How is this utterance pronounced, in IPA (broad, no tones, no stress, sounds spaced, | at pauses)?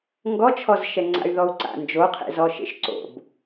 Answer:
ŋ ɡ ɔ t͡ʃʰ ɔ z ʃ ɛ ŋ͡ǀ a̰ y̯ ð ɔ u̯ ǀ a̰ n d͡ʒ o qʰ ḛ z ɔ ʃ ḛ ʃ ǀ o̰ b